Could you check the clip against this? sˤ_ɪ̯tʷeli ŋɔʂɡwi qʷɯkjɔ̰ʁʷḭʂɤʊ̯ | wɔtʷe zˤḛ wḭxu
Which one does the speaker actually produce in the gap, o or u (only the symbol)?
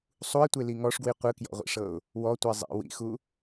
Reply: u